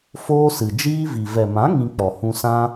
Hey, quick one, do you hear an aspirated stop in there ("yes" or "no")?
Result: no